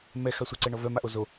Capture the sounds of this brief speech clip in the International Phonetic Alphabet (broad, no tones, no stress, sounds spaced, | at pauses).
m ɛ x a sʷ ə ǀ ɛ ɳ ɔ v œ m a ʔ o z o